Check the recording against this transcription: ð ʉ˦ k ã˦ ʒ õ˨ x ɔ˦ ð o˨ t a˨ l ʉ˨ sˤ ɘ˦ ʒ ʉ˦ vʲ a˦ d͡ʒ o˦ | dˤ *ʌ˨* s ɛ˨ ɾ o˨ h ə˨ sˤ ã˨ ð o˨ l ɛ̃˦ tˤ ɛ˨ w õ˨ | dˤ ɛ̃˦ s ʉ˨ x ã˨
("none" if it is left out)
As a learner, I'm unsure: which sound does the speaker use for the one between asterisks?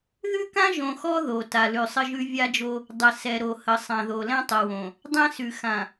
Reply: ə˨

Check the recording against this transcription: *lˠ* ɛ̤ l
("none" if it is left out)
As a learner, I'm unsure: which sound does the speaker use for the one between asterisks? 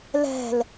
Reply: l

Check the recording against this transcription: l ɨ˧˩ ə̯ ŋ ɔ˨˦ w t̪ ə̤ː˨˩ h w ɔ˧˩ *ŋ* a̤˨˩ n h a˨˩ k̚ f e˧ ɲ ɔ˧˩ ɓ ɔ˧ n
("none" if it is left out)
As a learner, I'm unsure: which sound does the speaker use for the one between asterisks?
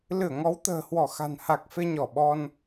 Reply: x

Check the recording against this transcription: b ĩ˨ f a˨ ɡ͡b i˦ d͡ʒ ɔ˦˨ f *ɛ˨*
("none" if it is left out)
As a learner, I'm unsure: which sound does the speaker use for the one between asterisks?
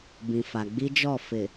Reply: ɪ˨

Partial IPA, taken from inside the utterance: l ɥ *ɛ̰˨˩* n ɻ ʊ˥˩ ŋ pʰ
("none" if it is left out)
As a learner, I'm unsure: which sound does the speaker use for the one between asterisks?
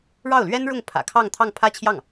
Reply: ɛ˥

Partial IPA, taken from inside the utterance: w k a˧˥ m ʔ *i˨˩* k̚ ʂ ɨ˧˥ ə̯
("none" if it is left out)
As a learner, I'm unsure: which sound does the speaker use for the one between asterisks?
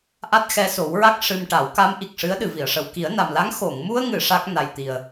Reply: i˨˩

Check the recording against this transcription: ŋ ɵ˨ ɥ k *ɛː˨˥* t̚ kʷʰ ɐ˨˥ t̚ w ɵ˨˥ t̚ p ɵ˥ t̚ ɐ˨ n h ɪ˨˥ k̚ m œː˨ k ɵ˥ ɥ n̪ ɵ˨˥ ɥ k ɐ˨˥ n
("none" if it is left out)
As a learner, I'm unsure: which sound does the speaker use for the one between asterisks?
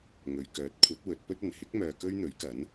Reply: œː˨˥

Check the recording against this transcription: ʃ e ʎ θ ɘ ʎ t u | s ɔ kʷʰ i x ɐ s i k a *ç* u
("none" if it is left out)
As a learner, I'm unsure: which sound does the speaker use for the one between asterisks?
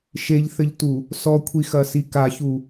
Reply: ç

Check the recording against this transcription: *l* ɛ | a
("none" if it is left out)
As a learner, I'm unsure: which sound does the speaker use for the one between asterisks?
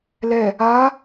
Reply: l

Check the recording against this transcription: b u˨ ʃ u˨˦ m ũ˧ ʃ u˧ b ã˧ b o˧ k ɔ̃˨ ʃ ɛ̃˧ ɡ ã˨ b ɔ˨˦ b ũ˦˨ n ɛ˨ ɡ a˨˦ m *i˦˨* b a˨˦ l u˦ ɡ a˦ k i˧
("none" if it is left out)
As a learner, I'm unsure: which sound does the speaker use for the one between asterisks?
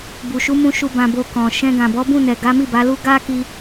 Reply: i˦˨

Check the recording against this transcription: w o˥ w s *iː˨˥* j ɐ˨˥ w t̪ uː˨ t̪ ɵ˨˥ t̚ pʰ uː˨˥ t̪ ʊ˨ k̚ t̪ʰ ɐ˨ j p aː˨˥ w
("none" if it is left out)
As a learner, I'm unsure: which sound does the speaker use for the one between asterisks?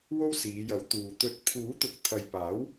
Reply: iː˨˧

